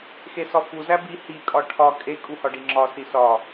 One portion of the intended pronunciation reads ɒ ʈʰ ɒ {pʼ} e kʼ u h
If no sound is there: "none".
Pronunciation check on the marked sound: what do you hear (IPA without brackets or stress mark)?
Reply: kʼ